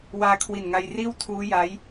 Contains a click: no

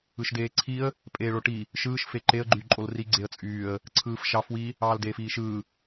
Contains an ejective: yes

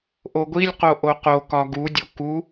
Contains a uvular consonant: yes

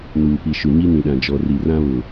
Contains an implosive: yes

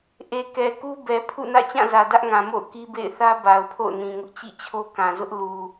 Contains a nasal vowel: yes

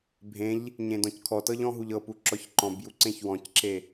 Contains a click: yes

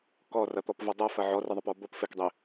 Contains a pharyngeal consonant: yes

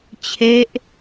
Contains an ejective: no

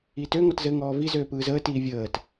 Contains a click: no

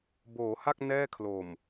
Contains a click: no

